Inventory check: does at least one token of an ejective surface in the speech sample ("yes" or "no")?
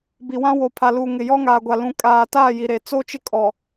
yes